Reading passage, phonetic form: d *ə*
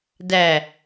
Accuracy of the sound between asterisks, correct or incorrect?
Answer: incorrect